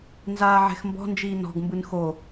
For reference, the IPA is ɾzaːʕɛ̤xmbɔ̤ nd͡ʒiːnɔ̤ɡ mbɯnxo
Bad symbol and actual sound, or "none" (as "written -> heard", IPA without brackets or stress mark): ɾ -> n